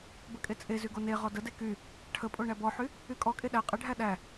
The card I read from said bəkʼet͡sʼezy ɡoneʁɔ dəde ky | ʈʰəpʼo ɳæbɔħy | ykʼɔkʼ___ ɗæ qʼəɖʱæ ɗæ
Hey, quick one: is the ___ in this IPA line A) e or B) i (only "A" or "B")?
A